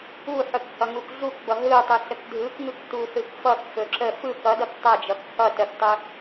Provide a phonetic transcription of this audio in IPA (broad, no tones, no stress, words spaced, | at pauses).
uħɵk hʌŋukɮukbʌ ɦɯtˤɯ ɬəkdʱɯkŋɯk tusɯkfʌkfɵ ǁə fɯk ʌdʌk tˤʌd͡ʒʌk hʌ təktˤɵ